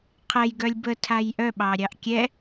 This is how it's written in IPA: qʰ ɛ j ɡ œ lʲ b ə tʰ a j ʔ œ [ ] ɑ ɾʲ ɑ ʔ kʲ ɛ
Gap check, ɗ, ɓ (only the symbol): ɓ